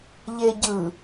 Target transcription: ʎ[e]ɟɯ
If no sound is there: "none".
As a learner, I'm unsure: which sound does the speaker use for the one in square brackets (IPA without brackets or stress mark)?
e